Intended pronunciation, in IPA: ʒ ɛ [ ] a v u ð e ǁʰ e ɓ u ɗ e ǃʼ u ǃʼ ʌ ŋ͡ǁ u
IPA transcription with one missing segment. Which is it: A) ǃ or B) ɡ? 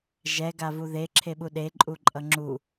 B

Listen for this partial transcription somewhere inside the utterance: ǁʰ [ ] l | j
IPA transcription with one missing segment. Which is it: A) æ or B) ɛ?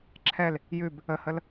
B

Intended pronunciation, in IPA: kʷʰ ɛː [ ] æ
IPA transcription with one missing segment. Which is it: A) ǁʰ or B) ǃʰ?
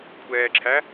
A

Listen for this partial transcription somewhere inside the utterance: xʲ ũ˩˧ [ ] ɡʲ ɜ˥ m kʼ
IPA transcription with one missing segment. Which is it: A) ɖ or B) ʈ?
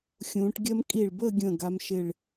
B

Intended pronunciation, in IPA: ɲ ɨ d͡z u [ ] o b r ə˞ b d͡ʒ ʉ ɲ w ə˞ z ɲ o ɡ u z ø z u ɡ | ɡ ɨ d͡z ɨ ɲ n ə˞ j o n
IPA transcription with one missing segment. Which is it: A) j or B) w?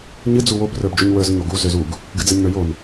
B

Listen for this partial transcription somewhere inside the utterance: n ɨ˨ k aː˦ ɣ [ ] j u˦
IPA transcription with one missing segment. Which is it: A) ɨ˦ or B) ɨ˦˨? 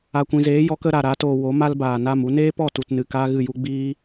B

